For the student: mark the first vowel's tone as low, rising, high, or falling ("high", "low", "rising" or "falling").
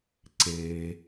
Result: high